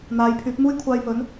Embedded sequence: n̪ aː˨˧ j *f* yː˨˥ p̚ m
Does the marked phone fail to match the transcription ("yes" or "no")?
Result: yes